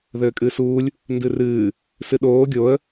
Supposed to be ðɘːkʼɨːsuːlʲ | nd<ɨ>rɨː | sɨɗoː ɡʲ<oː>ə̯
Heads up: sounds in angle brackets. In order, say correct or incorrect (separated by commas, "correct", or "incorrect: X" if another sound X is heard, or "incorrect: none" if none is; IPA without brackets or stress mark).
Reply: correct, incorrect: o